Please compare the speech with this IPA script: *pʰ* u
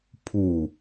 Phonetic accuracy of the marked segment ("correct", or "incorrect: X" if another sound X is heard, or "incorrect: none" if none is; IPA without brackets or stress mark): correct